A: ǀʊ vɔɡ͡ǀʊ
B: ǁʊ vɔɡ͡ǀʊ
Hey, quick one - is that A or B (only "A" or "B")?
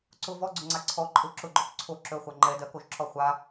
A